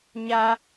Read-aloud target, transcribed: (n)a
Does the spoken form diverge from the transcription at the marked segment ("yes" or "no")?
yes